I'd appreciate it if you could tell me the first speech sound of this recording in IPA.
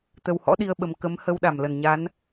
t̪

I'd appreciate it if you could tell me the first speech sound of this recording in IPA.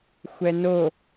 xʷ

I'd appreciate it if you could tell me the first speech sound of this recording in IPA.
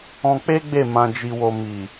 ɔ̃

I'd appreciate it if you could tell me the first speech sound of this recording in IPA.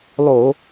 lˠ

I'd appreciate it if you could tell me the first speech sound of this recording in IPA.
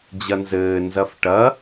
d͡ʑ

